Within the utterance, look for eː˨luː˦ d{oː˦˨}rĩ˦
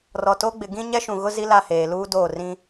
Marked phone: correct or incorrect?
correct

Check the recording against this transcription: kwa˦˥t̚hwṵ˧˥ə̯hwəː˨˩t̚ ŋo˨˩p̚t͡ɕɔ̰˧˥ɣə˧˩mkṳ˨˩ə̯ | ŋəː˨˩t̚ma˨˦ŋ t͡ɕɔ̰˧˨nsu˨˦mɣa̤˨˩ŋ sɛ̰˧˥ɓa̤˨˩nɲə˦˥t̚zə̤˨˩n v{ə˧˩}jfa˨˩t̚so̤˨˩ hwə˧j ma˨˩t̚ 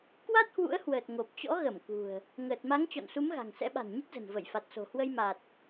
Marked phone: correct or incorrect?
correct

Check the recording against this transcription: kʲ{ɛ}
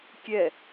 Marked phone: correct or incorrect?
correct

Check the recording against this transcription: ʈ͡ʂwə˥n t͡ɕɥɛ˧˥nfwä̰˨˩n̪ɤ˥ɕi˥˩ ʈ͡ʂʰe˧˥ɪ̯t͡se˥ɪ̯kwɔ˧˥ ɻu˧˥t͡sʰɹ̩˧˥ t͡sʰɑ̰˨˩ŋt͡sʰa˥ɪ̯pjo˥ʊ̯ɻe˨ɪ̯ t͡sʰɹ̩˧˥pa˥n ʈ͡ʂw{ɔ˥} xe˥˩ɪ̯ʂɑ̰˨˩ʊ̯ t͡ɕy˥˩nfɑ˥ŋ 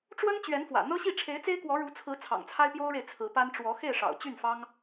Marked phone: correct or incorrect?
incorrect: ɔ˧˥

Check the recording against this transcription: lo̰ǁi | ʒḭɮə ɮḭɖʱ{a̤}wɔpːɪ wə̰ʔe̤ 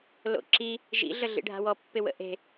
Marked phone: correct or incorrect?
correct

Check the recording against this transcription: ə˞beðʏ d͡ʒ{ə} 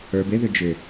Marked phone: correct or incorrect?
incorrect: ʏ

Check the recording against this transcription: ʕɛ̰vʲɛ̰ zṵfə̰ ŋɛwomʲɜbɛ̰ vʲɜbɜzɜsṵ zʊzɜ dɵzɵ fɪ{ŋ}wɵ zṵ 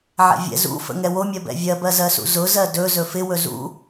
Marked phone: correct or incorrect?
incorrect: none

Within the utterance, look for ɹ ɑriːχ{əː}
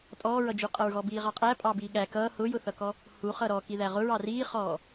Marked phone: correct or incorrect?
incorrect: ɔː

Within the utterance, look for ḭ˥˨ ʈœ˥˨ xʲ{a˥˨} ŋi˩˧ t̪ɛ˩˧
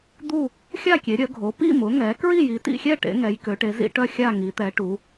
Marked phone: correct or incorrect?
correct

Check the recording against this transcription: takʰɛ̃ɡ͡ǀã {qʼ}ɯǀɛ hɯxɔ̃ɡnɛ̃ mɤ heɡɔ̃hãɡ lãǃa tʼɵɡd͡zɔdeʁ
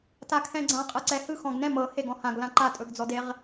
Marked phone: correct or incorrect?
correct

